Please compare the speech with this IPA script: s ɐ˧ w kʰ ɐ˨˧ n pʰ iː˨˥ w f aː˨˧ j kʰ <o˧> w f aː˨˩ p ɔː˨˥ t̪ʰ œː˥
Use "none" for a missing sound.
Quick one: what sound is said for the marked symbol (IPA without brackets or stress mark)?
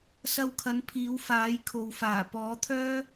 o˨